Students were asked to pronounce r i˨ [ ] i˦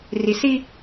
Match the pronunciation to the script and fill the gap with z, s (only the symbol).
s